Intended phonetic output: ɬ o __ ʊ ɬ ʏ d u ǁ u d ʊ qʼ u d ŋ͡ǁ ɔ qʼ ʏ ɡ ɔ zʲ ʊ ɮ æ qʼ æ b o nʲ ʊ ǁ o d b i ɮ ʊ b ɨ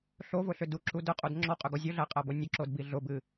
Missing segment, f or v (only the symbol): v